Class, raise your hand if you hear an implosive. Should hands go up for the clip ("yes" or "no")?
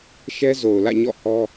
no